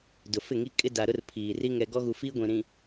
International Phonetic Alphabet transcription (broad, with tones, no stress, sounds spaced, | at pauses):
d ʊ˨ f ɪ˦˨ ŋ i˦ kʼ ɪ˦ d a˨ ɾ ʊ˦ r pʰ iː˨ r i˦ ŋ ɛ˨ ɡ ɔ˦ ɣ u˨ f iː˦ ɡʷ ĩ˨ ɾ ĩ˨